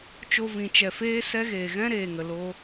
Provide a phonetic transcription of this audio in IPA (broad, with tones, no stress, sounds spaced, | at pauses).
t͡ʃ o˧ v ĩ˨ t͡ʃ ɛ˨ f eː˦ s ɛ˦ ɣ eː˨ ɣ ɛ̃˦ ɾ eː˨ ŋ ə˨ l o˧